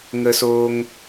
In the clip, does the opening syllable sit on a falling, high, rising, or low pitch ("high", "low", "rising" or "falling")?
high